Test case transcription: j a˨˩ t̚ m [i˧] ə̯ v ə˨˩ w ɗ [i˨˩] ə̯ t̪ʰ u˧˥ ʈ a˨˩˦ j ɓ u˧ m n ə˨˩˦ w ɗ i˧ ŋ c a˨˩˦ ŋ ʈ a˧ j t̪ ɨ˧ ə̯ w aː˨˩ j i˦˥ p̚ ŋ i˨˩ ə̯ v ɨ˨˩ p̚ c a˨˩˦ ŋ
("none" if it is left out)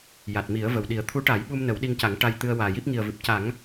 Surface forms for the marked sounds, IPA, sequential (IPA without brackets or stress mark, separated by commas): i˨˩˦, i˨˩˦